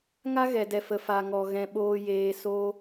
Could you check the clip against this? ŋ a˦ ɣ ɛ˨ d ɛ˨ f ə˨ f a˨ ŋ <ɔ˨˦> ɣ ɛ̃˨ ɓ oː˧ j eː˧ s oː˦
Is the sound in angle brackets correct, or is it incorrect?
incorrect